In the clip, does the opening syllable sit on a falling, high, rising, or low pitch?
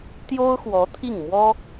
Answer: high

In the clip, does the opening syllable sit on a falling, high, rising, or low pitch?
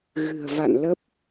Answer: low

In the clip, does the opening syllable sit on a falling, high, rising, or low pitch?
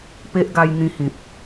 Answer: high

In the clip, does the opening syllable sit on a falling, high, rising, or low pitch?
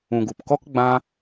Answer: low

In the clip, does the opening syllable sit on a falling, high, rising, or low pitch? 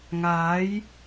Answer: rising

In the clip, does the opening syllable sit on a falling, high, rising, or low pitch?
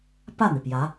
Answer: falling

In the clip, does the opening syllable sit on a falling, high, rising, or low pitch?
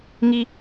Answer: high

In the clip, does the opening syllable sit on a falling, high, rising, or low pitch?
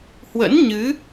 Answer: rising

